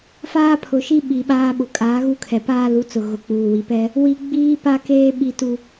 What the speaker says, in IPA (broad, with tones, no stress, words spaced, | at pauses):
faː˦pʰʊ˨ʃi˦ ɓi˨ɓaː˦ɓʊ˨ kʼaː˨˦ɣu˦kʰɛ˨ paː˦lu˨˦t͡sʊ˨ ɣʊ˨ k͡puː˨wi˨pɛ˦ | wi˦ ɡ͡biː˦pa˦keː˦ ɓi˦tu˦